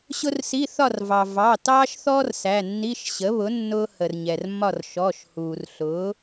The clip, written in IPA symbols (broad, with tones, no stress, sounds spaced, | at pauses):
ɕ ʊ˥ r s i˧˥˧ θ ɒ˥˨ r v ɑ˩ v ɑ˩˧˩ t ɑː˥ ʃ θ ɔ˥ r s æ˩˧˩ nː i˧˥˧ ʃ ɕ ə˩˥ β ʊ˩˥ nː ʊː˥ h ə˩ r ɲ ɛ˩ r mː ɒ˥˨ r ʃ ɔ˩˧˩ ʃ h uː˩ r ɬ ʊː˩˥